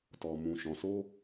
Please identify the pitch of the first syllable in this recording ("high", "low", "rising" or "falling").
low